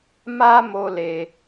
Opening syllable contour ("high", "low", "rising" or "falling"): high